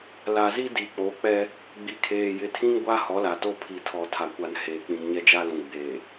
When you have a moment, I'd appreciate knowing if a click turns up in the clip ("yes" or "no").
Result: no